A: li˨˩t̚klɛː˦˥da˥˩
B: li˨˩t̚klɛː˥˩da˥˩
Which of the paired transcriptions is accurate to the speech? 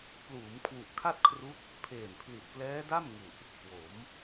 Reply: A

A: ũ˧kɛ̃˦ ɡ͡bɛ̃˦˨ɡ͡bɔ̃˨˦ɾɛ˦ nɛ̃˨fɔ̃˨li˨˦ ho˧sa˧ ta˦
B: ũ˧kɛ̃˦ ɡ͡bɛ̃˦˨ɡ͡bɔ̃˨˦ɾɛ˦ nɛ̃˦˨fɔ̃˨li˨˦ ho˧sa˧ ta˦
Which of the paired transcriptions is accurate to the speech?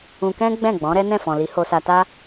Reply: B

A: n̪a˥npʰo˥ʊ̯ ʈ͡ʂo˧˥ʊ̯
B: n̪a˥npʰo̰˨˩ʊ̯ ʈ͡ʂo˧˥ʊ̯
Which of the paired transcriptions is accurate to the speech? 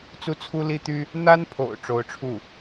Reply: B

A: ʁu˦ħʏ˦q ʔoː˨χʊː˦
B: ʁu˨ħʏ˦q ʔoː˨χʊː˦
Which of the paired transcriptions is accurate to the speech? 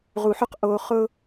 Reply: B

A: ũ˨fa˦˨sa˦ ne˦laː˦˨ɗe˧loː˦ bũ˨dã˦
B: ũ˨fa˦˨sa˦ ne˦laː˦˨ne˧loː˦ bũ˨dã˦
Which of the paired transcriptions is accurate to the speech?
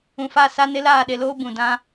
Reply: A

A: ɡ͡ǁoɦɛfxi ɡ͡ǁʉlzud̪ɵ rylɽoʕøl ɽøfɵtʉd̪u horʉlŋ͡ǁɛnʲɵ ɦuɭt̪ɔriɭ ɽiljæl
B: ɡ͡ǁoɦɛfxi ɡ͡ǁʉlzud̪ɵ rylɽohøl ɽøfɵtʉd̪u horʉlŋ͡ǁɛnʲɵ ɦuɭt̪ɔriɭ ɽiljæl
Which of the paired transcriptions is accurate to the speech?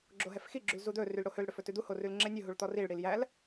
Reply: B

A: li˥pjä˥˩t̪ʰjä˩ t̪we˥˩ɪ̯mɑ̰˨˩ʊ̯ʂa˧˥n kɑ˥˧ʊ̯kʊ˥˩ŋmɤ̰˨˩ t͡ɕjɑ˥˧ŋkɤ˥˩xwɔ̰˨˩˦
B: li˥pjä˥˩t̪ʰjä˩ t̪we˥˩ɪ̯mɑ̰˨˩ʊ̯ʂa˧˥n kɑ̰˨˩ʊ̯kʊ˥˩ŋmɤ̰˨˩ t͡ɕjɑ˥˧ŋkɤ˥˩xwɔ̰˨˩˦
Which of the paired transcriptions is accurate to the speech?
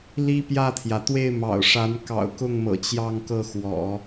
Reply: B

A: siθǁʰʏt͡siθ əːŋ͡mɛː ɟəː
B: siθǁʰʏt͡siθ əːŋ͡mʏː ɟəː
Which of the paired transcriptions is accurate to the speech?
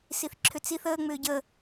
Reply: B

